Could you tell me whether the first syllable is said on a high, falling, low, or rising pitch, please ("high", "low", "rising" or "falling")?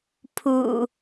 low